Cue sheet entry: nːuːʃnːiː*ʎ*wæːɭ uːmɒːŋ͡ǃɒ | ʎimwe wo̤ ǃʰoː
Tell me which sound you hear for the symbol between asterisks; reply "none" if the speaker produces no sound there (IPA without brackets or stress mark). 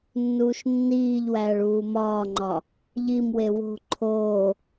ʎ